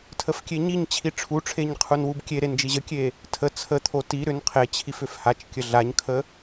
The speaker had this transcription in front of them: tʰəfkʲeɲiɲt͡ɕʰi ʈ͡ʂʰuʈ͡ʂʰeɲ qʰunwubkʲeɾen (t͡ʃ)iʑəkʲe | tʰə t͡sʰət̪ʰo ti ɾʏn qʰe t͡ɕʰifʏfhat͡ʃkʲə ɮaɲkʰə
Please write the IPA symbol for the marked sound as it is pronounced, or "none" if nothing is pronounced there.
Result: d͡ʒ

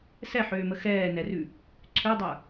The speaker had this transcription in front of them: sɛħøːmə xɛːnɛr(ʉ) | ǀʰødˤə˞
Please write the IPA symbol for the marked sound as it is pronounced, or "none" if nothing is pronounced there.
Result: ʉ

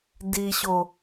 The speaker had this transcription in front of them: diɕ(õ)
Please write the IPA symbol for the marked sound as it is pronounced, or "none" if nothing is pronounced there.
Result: o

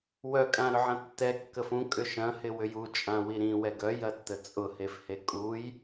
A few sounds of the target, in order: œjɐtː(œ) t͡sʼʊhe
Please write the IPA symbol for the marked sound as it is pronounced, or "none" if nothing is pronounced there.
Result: ə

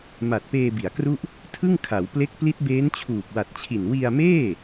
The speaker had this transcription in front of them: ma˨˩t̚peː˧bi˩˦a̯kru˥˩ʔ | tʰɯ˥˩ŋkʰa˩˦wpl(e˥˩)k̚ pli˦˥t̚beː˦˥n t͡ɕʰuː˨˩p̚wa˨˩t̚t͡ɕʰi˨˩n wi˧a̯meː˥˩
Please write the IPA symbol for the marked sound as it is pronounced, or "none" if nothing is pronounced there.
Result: e˦˥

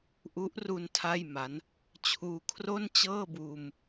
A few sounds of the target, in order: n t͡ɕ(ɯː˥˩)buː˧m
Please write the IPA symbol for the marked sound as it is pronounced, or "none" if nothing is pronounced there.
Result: ɤː˥˩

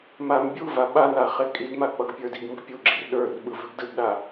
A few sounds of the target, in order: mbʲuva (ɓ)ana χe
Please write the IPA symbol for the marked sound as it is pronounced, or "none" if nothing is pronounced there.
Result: ɓ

